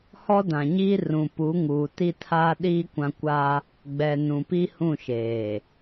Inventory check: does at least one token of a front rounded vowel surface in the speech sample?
no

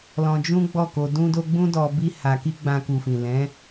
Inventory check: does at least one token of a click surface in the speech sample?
no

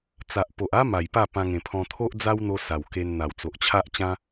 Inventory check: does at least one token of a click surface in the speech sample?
no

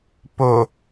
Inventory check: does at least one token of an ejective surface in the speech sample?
no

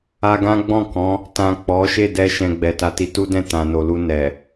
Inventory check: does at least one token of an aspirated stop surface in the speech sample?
no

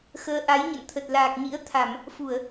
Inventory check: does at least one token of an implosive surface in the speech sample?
no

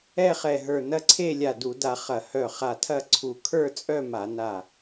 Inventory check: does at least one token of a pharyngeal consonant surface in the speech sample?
no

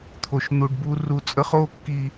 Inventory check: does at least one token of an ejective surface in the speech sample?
yes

